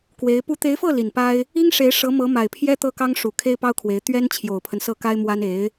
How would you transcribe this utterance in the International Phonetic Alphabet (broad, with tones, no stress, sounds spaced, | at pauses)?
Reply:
k w e˧˥ ɪ̯ p u˧˥ t̪ e˧˥ ɪ̯ f ɤ˥˩ l i˨˩ n p a˥ ɪ̯ | i˥ ŋ ʂ e˧˥ ɪ̯ ʂ ɤ˧˥ m ɤ˧˥ m a˨˩ ɪ̯ pʰ j ɛ˥ t̪ ɤ˥ k ɑ˥ ŋ ʂ u˨˩ kʰ e˥ ɪ̯ p ɑ˥ ʊ̯ kʰ w e˧˥ ɪ̯ t̪ ɥ ɛ˥ n t͡ɕʰ j o˨˩ ʊ̯ pʰ ə˦ n s ɤ˥˩ k a˥ ɪ̯ m w a˥ n e˧˥ ɪ̯